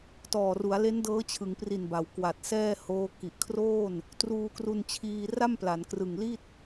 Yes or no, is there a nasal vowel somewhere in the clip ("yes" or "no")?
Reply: no